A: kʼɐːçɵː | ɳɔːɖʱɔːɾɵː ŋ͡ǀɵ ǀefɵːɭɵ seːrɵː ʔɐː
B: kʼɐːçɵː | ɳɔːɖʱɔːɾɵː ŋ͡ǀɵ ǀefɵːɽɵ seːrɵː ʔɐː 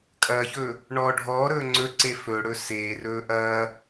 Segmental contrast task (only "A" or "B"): B